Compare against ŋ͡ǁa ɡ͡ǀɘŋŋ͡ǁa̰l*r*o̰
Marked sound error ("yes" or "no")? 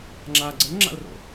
no